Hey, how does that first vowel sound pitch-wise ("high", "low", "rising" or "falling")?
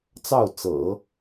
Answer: falling